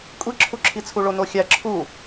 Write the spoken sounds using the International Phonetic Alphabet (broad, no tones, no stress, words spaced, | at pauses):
kʷʼiǁʰuǁʰit͡sʰu ɭonoxʲæ ǁʰu